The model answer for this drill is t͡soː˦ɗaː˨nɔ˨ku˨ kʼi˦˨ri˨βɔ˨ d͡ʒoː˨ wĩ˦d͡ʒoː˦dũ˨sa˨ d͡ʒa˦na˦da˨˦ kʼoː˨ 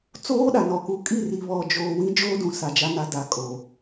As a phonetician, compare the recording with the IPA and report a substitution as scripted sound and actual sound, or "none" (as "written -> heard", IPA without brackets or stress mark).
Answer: aː˨ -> a˨